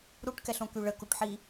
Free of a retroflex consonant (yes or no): no